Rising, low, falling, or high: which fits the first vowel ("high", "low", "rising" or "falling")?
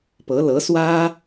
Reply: rising